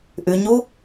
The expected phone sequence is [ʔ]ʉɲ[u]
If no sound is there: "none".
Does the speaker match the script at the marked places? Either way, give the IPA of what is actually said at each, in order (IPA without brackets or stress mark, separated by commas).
ʔ, u